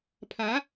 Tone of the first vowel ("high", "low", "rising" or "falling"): rising